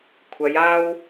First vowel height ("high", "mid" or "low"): low